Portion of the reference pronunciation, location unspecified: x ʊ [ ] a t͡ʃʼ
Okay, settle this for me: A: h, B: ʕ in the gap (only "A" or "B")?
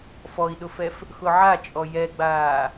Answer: B